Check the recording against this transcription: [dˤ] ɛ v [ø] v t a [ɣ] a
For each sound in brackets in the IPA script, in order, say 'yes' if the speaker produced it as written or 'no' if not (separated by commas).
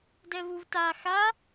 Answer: no, no, no